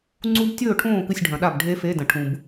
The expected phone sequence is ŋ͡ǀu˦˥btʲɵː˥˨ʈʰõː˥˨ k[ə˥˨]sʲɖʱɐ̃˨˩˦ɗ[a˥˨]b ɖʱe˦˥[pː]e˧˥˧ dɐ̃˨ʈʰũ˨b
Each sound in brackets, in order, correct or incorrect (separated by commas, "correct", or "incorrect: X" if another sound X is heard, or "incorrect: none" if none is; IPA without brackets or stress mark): incorrect: ɨ˥˨, correct, incorrect: f